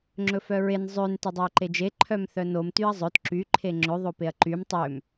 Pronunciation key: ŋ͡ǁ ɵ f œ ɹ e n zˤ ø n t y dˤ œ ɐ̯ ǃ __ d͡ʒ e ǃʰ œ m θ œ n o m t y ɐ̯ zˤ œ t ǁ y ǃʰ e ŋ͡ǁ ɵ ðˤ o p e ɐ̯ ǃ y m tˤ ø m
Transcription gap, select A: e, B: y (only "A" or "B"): A